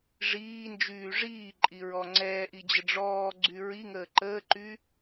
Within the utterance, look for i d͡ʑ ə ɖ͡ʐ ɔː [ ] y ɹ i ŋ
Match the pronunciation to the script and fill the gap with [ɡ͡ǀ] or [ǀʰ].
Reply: ɡ͡ǀ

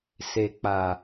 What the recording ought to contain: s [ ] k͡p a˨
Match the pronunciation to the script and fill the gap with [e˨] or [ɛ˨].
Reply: e˨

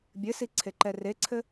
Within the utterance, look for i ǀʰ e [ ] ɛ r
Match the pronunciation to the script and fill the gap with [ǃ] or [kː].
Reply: ǃ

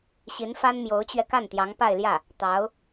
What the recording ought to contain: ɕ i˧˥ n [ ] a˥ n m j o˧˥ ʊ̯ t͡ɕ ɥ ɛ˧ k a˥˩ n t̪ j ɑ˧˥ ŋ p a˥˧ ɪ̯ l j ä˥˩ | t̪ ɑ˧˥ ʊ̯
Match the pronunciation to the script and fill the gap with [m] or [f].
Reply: f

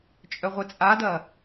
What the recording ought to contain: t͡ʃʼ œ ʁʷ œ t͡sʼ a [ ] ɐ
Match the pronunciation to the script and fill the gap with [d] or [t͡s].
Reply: d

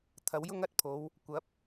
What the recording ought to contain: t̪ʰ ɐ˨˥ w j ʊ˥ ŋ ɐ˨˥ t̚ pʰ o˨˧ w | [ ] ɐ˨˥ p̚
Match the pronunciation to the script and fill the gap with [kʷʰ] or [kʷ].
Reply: kʷ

